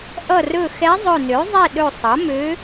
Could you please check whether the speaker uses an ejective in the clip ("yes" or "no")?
no